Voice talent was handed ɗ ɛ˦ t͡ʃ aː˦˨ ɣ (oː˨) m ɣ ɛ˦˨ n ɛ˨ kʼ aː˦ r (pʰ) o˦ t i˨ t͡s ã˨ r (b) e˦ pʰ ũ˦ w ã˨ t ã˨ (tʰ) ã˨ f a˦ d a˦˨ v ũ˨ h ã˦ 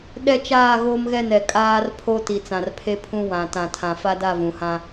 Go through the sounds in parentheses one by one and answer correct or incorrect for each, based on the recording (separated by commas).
incorrect, correct, incorrect, correct